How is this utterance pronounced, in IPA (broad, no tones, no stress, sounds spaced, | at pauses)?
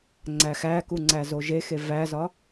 ŋ͡ǀ æ x æ k u ŋ͡ǀ æ z o ʒ e x e v æ z ɒ